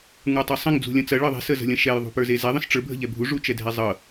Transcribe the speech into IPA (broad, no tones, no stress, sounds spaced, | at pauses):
ŋ ə˞ tˤ ə˞ sˤ ə̃ ŋ d͡z ṳ lʲ ɐ̃ t͡s ɐ ɭ ɤ ðˤ ɛ̤ s ə z ə̤ lʲ ɐ̃ ʃ ɛ j ðˤ ṳ p ə˞ z e z ɛ ðˤ ə̃ s ʈ͡ʂ ə˞ bʱ ə̤ ʎ ɛ bʱ u ʐ u t͡ʃ ɛ dʱ ɛ zˤ ɤ